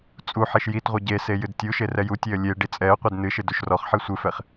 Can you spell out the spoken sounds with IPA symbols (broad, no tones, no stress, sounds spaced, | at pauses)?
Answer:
t͡sʼ u ħ e ʃ j i t ʁʷ e ɟ e s e j ɨ d tʲ u ʃ e r ɛ j u tʲ e ə̯ lʲ e ɖ i t͡sʼ ɛ ə̯ qʷ i d n ɨ ʃ ɨ d u ʃ r ɔ χ ħ i sʷ ɨ f ɛ χ